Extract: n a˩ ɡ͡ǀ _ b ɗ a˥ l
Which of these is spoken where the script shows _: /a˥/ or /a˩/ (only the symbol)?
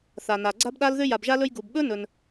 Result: a˥